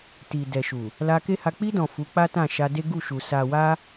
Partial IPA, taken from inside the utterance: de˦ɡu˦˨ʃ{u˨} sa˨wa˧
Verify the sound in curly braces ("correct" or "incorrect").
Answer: correct